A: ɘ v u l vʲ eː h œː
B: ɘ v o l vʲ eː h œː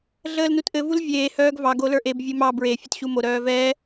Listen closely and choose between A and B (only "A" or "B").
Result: A